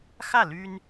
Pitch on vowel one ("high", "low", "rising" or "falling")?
falling